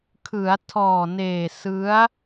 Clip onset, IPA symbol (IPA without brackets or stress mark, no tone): kʰ